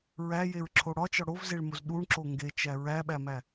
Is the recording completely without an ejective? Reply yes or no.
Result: yes